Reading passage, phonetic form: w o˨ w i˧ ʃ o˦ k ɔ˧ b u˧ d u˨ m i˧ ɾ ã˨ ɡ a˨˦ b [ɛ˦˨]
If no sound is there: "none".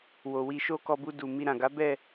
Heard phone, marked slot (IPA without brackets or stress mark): ɛ˦˨